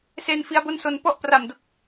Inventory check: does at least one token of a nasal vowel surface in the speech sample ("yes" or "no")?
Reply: no